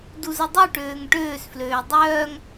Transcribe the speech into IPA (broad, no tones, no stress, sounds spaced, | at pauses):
d u z ə dˤ u ʈ øː ŋ ʈ øː s f l øː dˤ œː ŋ